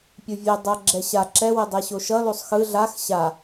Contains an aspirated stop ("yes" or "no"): no